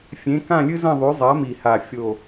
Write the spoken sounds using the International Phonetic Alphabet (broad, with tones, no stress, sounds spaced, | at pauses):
fʲ ẽ˨˥ k ã˥˧ lʲ ɨ˥ z ɐ̃˥˧ ðˤ ʉ˨˥ zˤ a˨˥ m i˨˩ h a˨˩ fʲ o˨˩